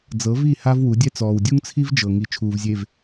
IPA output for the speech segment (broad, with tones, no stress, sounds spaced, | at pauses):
d͡z ɤ˨˦ v i˦˨ h a˦ v w u˨˦ dʲ ɛ˦ t͡s ɔː˨ w dʲ u˦ ŋ t͡sʰ i˦ v d͡ʒ ɤ˨ ŋ i˨ t͡ʃʰ uː˨ v zʲ e˨ v